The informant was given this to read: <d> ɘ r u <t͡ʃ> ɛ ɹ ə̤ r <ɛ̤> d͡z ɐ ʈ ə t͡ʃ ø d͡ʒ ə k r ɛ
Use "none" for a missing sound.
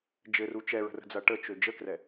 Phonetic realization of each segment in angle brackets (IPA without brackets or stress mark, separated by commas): d͡ʒ, t͡ʃ, ə̤